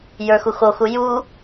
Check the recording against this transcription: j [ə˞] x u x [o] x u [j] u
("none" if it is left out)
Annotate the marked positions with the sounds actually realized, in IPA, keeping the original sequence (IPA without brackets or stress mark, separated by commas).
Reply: ə˞, o, j